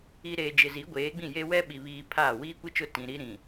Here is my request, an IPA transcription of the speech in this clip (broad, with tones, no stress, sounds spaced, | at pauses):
i˨ ɾ eː˨ d͡ʒ ɪ˨ z i˨˦ ɡʷ eː˨˦ ɡ͡b ĩ˦˨ j e˦ w ɛ˦ ɓ i˨ β iː˨ pʰ aː˦˨ w iː˦ kʷ i˦ t͡ʃ ʊ˦˨ t ĩ˨ ɾ i˦ ɾ ĩ˨